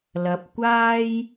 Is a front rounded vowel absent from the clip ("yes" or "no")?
yes